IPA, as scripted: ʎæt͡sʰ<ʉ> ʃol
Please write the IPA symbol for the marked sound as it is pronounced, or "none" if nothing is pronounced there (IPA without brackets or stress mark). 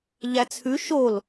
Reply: ʉ